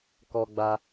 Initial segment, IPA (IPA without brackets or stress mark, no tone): k